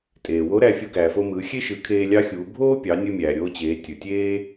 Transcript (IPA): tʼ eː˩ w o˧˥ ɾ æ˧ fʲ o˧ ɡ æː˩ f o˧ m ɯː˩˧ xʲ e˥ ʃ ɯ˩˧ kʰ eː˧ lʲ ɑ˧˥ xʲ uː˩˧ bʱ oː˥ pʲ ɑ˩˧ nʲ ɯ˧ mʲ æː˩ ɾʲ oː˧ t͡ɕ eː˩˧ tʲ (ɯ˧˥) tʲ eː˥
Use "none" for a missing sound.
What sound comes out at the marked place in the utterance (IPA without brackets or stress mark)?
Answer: ɯ˩